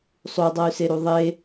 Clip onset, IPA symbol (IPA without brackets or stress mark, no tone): sˤ